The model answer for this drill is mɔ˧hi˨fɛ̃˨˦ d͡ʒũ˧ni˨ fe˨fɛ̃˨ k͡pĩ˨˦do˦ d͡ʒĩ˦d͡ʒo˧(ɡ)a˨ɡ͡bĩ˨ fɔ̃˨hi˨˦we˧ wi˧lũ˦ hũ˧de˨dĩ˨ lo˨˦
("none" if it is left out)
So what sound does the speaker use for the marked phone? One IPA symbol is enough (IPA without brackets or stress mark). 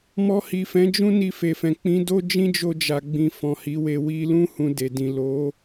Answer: d͡ʒ